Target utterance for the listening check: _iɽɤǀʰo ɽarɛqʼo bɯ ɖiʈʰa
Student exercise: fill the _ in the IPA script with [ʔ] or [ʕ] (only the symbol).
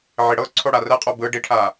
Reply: ʕ